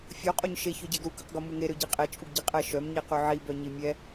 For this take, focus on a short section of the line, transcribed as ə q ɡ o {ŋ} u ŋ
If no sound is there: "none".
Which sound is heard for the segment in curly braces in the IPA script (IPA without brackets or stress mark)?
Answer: m